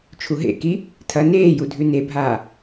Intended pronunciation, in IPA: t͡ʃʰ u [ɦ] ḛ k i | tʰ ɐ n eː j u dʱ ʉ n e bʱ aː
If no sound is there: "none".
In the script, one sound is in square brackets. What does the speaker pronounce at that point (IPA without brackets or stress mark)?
ɦ